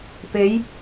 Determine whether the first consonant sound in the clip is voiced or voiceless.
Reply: voiceless